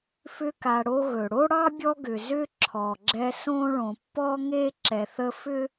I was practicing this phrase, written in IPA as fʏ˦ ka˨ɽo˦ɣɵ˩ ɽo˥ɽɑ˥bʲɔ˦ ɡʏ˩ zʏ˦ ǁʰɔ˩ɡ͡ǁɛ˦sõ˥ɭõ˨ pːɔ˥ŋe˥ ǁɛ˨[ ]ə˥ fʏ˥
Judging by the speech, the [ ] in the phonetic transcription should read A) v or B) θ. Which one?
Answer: B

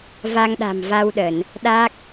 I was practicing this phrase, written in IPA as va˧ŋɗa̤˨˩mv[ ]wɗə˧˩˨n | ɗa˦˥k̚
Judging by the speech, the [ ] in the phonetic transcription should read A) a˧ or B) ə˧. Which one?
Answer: A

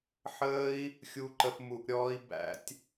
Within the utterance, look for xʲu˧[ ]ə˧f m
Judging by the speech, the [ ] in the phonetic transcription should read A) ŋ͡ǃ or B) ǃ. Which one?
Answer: B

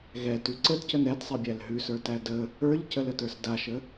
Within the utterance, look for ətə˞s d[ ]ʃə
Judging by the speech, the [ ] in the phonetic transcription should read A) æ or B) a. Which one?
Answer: B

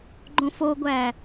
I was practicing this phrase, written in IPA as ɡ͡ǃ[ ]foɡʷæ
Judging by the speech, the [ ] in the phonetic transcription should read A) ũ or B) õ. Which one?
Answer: B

